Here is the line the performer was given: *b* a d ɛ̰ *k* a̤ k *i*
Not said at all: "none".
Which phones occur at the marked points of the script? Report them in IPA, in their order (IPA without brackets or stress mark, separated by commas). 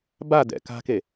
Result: b, k, e